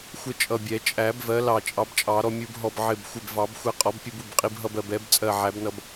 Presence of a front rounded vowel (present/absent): absent